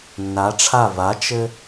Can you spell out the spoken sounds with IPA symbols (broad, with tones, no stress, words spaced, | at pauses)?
nːa˩˧ʈ͡ʂʰa˧˩ va˩˥ t͡ʃɘ˧